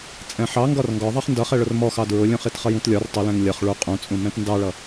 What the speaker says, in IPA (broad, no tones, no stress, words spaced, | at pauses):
t͡sʼɛ̃ħɑ ŋɡɒrŋɡɒðˤɑχ ndʌχɛ ɭʊrmɔxɑ dɹʊlʲũχ itχʌjũtlʲɒr tˤʊlɛ̃ŋ lʲʌχ ɭu qʼũt͡sʼũ mɛ̃tndɑɭʌ